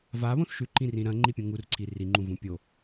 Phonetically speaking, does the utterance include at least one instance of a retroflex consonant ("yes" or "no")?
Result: no